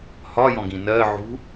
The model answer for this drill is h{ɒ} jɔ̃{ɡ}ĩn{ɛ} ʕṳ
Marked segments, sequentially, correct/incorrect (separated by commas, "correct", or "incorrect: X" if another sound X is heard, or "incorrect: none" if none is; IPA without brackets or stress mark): correct, correct, incorrect: ɜ